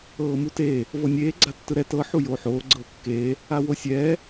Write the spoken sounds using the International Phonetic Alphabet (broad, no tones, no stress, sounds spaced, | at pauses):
ɤː m u t eː | v ɤ nʲ eː ɡ͡ǀ a tː ɯ ɾ ɛ t ɤ ħ u j oː ħ oː ɡ͡ǀ ɤː kː eː | a w o sʲ ɛː